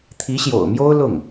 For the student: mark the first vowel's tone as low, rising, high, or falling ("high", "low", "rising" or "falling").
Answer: rising